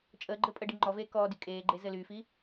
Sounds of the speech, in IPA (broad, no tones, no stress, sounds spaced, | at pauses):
t͡ʃʼ əː ɡ͡ǃ ɘ pʼ ə ɖ i ŋ͡ǃ ɔ v eː k ɔː d y kʼ eː ɡ͡ǃ e z ɘ l y f i